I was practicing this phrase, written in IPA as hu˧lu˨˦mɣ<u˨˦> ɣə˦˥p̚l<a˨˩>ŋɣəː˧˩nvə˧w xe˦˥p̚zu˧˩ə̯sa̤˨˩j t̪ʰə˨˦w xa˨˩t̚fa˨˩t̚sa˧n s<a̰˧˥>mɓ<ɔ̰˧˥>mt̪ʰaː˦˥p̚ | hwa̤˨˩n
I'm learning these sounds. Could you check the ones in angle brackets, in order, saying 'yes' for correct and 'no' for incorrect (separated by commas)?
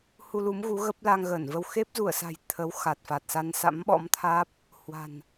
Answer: yes, no, yes, yes